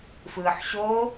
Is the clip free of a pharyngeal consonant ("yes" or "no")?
no